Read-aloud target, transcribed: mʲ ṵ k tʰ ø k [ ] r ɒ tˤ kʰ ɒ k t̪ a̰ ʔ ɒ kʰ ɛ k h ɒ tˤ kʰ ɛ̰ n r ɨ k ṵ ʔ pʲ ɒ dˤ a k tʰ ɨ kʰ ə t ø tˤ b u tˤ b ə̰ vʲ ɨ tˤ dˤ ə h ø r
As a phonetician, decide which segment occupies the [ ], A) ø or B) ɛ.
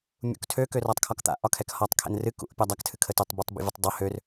A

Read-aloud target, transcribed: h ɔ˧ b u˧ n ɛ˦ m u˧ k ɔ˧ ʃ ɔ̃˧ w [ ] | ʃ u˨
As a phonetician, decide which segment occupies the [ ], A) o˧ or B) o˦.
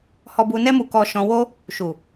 B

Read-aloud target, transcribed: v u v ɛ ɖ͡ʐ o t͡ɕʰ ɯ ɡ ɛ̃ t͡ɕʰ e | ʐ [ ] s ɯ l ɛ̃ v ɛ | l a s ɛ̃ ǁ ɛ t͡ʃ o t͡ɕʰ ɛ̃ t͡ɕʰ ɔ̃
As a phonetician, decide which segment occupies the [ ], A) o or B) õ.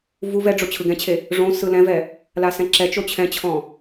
B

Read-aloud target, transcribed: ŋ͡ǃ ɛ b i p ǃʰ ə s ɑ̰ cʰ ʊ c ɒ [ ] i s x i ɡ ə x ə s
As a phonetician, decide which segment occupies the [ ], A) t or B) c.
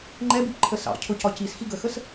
B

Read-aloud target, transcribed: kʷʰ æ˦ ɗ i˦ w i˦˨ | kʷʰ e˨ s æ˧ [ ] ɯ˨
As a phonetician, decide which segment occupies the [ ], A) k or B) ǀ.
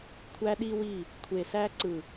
B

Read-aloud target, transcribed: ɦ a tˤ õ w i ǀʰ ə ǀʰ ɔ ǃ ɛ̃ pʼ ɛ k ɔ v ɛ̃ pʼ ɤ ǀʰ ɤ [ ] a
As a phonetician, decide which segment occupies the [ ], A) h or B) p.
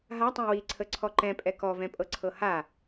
A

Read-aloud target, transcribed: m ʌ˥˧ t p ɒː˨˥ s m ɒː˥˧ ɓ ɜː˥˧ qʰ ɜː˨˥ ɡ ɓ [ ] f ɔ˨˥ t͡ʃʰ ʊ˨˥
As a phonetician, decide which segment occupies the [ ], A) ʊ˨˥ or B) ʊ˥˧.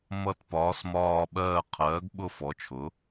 B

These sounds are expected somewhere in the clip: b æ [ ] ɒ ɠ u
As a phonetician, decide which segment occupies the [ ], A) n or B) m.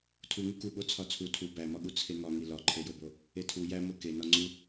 B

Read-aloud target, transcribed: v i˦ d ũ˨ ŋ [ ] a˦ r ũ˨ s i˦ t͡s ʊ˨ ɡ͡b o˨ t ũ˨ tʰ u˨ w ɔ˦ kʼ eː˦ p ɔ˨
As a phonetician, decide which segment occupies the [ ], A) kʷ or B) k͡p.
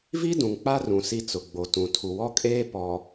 B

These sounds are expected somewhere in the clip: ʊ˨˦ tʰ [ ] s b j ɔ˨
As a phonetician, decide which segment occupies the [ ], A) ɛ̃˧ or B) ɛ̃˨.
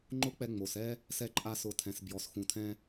B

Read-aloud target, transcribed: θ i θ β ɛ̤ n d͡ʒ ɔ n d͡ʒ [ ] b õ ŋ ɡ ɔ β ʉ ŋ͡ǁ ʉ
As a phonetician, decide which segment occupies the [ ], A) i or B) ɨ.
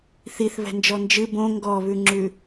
B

